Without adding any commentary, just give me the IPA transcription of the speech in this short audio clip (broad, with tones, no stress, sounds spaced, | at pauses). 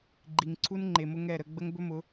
ɡ͡ǃ i˨ ŋ ǀʰ u˦ n ŋ͡ǃ e˨ m ʊ˦ ŋ ɛ˦˨ ɾ ə˦ ɡ͡b ə˦ ŋ b ɵ˦ m ʊ˨˦